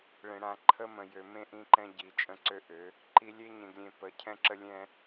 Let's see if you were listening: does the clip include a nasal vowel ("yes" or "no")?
yes